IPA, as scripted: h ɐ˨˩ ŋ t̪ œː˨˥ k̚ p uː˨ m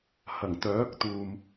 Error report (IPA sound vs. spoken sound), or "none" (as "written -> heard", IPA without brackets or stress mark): p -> t̪